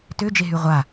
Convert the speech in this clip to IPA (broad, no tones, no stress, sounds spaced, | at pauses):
t ø d͡ʒ e ɦ y ʁʷ a